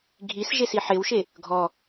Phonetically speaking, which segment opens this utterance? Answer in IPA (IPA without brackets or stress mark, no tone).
ɡʱ